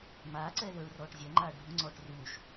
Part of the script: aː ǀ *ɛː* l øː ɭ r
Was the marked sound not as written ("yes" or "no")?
no